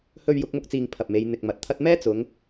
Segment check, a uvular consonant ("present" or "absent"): absent